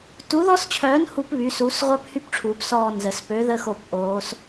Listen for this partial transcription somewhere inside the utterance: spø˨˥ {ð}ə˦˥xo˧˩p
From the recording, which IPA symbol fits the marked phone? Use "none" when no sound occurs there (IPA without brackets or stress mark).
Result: ð